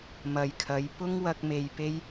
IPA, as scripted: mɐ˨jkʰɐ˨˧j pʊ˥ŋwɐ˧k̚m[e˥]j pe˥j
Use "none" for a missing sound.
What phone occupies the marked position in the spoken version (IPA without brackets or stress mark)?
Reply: e˨